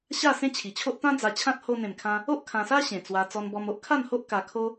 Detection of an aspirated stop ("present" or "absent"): present